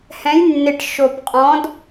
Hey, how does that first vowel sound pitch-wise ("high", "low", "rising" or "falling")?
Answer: rising